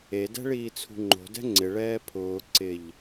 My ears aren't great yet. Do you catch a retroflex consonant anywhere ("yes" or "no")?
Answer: yes